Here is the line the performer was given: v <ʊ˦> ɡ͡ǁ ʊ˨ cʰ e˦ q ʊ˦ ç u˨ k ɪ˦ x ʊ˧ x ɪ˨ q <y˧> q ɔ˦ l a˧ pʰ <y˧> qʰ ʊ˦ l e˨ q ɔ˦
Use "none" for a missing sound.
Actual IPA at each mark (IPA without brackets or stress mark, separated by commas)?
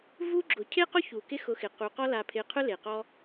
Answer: u˦, u˧, ɪ˧